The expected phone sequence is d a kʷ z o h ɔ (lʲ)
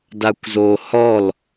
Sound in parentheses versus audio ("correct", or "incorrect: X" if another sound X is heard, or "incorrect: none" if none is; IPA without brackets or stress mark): incorrect: l